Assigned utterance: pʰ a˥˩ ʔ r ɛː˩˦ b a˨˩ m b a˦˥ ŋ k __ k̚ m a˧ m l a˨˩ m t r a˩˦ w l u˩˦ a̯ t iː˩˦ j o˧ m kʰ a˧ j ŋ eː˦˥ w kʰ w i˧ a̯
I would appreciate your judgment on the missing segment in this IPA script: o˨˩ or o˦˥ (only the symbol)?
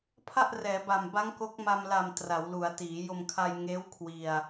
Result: o˦˥